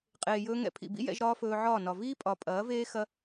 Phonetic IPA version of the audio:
qʼ eː˨ j ɵː˧ ŋ ɛ̰˧ pʰ ḭ˨ b ḭ˦ j ɛ̰˧ ʒ ɾ ɒː˦ f ɵː˧ ʕ ɒː˦˨ n ɒ˨ v iː˦ pʼ ɒ˨ pʼ ɐː˨˦ v eː˦ x ɐ˦

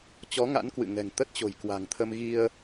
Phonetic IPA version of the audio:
t͡ɕ ɔ˨˦ ŋ a̰˧˥ n k w ɨ̰˧˨ ŋ ɛ̤˨˩ ŋ t̪ ə˦˥ t̚ t͡ɕ o̤˨˩ j k w a̤˨˩ ŋ t̪ʰ ə˧ m ɣ i˧ ə̯

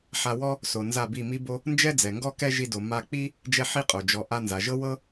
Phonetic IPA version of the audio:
ħ a˧ w ɔ˦ | s o˨ n z a˦˨ b i˦˨ m i˦ b o˦ | n d͡ʒ ɛ˦ d͡z ɛ˨ ŋ ɡ ɔ˦ k ɛ˦ ʒ i˧ d o˨ m a˧ k͡p i˦ | d͡ʒ ɛ˦ ħ i˦ qʼ o˨ d͡ʒ ɔ˨ ʔ a˧ n z a˨ ʒ ɤ˦ w ɤ˦

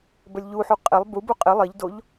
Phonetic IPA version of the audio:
b ə lʲ ʎ u ħ u qʼ e lˠ b u b u qʼ ɪ lˠ i ʎ d o ʎ

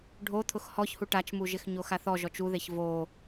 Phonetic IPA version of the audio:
ɖʱ o t̪ʰ ʊ x h ɔ ç h u ʈ a t͡ʃ m u ʒ ɪ x ɲ o x a θ ɔ ʒ ɔ t͡ʃ u ð e ç v o

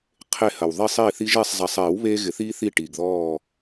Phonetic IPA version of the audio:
qʰ e˦˨ h ɐ˨ w ðˤ i˦˨ sˤ i˦˨ θ i˦ ʒ e˦˨ sˤ zˤ ɛ˨ sˤ eː˨˩˦ w β eː˦ ɣ ɪ˨˩˦ θ iː˦ θ iː˦˨ ʈ iː˨ ɡ ð ɔː˦˨

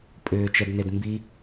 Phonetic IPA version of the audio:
pʼ ʏː t͡ʃ ɛ d n e d m b i

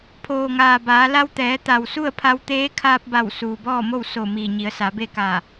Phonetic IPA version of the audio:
pʰ oː˩ ŋ aː˩ b aː˩˧ l a˧ w t̪ ɛː˩˧ t̪ a˩ w s u˥˨ ə̯ pʰ a˧ w t̪ eː˧˥ kʰ aː˧ p̚ b a˧˩ w s uː˩ b ɔː˥˨ m o˥˨ w s o˧˩ m iː˧˩ ɲ i˩˧ ə̯ s a˩˧ b e˥˨ k a˧˩

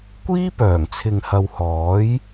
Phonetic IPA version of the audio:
kʷ iː˥ p œː˨˩ ŋ t͡sʰ ɪ˨ ŋ h ɐ˨ w h ɔː˨˥ j

